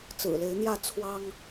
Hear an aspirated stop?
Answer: yes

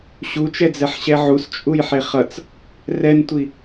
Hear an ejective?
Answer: yes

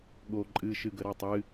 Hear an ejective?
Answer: yes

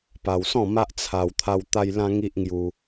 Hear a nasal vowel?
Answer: yes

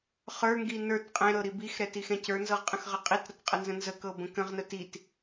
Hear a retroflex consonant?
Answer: no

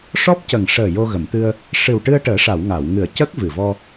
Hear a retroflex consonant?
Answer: yes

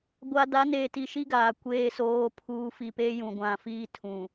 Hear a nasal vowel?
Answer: yes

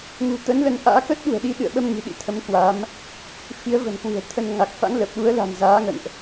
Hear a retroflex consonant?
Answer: no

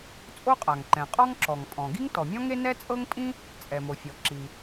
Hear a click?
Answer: yes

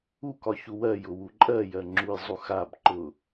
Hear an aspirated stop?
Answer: no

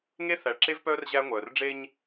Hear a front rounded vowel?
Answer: yes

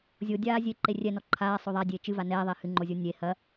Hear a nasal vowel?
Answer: no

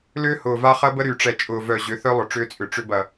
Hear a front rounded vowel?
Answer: yes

